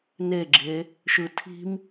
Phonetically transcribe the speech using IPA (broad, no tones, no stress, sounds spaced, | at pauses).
n e ɡ͡ǁ e | ʃ ɯ tʰ i̤ m